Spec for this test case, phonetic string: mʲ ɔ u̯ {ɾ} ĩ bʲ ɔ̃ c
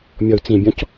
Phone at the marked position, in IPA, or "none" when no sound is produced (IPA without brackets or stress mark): t͡s